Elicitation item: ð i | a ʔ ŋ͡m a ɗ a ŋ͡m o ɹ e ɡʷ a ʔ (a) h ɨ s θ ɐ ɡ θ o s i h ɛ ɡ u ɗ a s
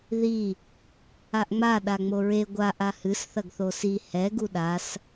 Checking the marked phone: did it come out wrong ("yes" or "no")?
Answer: no